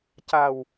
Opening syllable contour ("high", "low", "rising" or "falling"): low